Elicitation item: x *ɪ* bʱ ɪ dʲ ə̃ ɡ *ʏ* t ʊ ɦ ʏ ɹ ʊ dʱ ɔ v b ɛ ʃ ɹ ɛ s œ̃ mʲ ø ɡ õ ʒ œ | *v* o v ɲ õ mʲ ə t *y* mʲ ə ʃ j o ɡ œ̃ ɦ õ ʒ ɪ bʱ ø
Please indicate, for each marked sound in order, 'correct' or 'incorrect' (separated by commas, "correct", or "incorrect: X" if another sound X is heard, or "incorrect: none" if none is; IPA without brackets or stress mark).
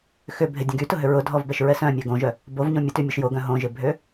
incorrect: ʏ, incorrect: y, incorrect: b, correct